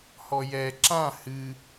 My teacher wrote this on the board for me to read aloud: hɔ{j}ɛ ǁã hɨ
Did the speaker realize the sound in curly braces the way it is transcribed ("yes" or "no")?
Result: yes